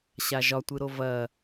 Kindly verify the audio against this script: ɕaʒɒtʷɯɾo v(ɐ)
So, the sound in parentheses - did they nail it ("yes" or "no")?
yes